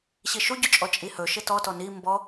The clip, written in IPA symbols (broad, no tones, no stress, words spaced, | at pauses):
ɕiʃuɟut͡ʃʼɔ t͡ʃʼihɵ ʃɪtɔtɔ ni mbɔ